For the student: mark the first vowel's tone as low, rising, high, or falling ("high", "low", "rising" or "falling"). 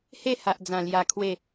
falling